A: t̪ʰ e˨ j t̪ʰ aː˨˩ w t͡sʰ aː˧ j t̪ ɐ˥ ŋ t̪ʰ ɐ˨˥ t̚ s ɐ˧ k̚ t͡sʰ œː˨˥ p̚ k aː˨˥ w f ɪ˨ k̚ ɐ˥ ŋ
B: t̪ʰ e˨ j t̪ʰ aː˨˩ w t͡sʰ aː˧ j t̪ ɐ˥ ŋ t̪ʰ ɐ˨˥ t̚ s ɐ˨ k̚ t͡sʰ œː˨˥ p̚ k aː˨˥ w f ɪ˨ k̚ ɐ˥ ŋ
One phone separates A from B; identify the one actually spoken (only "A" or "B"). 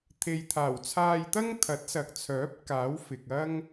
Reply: B